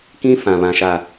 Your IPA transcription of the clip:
kĩ˦fã˨ βã˨ʃa˨

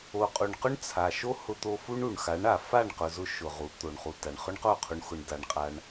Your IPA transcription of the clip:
o˨qʼu˨ɳqʊ˦ɳ t͡sʰa˨ʃo˦ hʊ˧t̪o˧ fu˦ɳu˨ɳ xa˨˦ɳ a˨ fa˦˨ɳqʊ˨zʊ˧ ʃʊ˨ʁu˨˦ t̪o˨ɳχu˨ ta˨ɳχʊ˦ɳqo˦˨ qʰu˧ɳxʊ˧ɳ da˧ɳqʼa˧ɳ

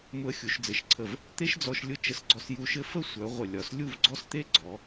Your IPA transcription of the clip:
mʊ˧ə̯xʲu˩˧ʃd͡zɘ˩˧ʃǀʰə˧˩v | t̪e˥ʃd͡zɔ˧ʃ lʲʊ˥˧t͡ʃə˧sɡ͡ǀɔ˧s ju˧ʃɘ˥˧ fə˥˧sʷœ˩˧ ʁʷə˧˩lʲɒ˧˩s lʲu˥˧vɡ͡ǀɔ˥˧st̪e˥ ɡ͡ǀɔ˩˧

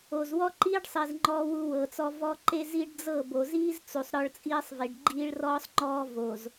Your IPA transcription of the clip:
o˨zwɔ˦ǃiː˦ɖsˤi˨z ŋ͡ǃɔː˦wu˦wɤː˨t͡sɔ˦ vɔ˦ǃe˦ zi˦ɖd͡zɤ˦˨ bo˨ziː˦z t͡su˨sˤ ɾɔ˦ɭt͡sʼiː˦sˤvi˨ɖ ɡ͡ǃiː˦ɭrɔː˦sˤŋ͡ǃɔː˦ vo˨z

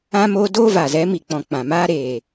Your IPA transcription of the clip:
ã˦moː˦ doː˦va˨zɛ˨˦ mi˨k͡pɔ̃˨ k͡pã˨maː˦ ɾeː˨

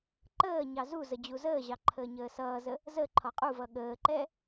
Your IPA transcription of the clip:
ǃəː ɲɑzuzə d͡ʑuzəːʑɑ ǃʰəːɲəːsʌːzə | zə ǃʰɒqʼuvʌ ɠəːǃɛ

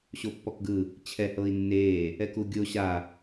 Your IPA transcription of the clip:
ɕopːɔkɡɯ | t͡ɕʰɛ hɤːi̯nːeː | ɛkuɡʲo ɕa

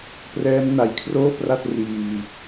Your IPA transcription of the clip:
prɛː˦˥m na˨˩jkʰroː˥˩pra˥˩t̚ riː˧

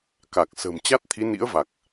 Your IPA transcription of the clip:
ka˨˩k̚ sə̤ː˨˩m t͡ɕa˦˥t̚t̪ʰi˨˦ nḭ˧˥ə̯va˨˩k̚

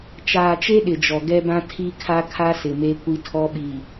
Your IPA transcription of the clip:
t͡ʃaː˨t͡ʃe˦ ɗɪ˨d͡ʒɔ˨ ɡɛ˦bã˦ tʰi˦kʰa˦kʰa˦ sɪ˨me˦kʷi˦ tʰɔ˦ɓi˨

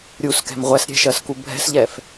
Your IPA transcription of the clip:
ɾʲuskɛ̤m ʁʷɛsɾʲɛ̤ʃɜsku bʱɛ̤sʎɛf

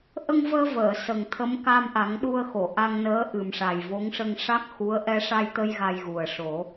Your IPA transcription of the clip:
ʔə˧ŋvəː˧ vəː˨˩˨sə˨˩ŋ t̪ʰə˧˥mka˧mʔa˨˩˦ŋɗu˧ə̯ xo˨˩˨ʔa˧ŋnəː˧˥ ʔɨ˨˩mʂa˨˩jvo˧˥ŋʂə˧ŋ ʂa˦˥k̚ xu˧˥ə̯ ʔɛ˧ʂa˧jt̪ə˧j ɣa˧jɣu˨˩ə̯ ʂo˨˩˦

